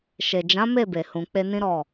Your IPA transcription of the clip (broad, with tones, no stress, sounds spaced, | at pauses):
ʃ e˨ d͡ʒ ã˨˦ m e˦˨ b e˨ h ũ˨ k͡p e˧ n ĩ˦ ɾ ɔ˦˨